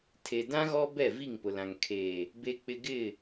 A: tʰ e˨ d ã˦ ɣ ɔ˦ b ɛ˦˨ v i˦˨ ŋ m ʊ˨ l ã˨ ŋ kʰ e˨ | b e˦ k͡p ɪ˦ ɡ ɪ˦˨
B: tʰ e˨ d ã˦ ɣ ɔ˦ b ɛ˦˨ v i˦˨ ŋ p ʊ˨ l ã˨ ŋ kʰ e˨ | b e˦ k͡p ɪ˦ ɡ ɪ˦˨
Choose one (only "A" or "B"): B